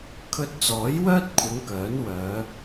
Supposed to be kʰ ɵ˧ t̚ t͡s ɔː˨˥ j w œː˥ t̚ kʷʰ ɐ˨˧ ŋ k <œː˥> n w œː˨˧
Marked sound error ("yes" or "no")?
yes